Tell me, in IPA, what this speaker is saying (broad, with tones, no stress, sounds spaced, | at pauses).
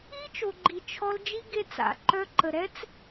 i˦ t͡ʃ o˨ ɡ͡ǃ i˨ t͡ʃʰ ɔ˦ l d͡ʒ i˦ ɡ e˦ t͡s a̰˨ ǃ œ˦ ǃ ə˨ ɾ ɛ˦ t͡s